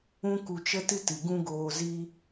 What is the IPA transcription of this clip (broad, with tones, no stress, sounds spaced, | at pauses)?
ũ˦ k u˧ t͡ʃ ə˦ t ɨ˦ t ɨ˨ ɡ ũ˦ ɡ oː˧ z i˦